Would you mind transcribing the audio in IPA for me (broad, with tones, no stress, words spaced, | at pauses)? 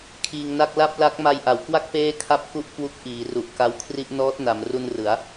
kʰiː˧ŋna˥˩k̚ la˥˩p̚la˦˥k̚ ma˧jʔa˩˦wkwa˥˩k̚ peː˥˩kʰa˥˩p̚ku˥˩ʔkwu˦˥k̚ ʔiː˩˦ru˨˩ʔ ka˦˥wkʰri˥˩ʔ nɔː˦˥t̚na˩˦m ru˧nrɯ˩˦a̯